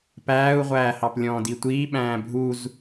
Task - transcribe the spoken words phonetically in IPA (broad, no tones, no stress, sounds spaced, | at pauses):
p æː u̯ ʁʷ æː h ɑ p lʲ ɔ̃ː d i tʷ iː ɓ æ̃ː bʱ u z